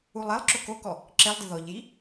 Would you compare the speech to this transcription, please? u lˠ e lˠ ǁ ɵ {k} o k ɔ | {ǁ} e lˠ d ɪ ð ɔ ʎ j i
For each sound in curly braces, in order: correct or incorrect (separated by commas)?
correct, correct